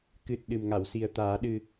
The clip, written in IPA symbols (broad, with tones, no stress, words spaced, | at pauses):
kɨ˨˩t̚ ɗɨ˨˩mŋa˨˩˨wsi˨˩ə̯t̪aː˨˩˦ ɗɨ˨˩